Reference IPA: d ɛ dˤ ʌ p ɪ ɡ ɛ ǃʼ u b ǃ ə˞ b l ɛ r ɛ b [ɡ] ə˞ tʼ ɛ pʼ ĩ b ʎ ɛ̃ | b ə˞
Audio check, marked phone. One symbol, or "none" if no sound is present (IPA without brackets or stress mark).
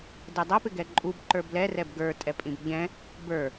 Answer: ɡ